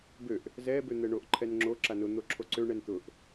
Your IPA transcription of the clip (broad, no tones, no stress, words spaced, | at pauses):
bøʔ | zɛ bøn̪ɛɳoʔ ǃʰɛnŋ͡ǁo ǁanʊ n̪oǁʰoǀøɳɛn t̪ʊʔ